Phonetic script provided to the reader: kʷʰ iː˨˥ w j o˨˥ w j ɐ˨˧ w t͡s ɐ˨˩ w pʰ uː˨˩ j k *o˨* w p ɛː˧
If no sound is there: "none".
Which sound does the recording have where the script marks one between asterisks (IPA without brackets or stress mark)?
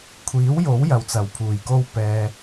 o˥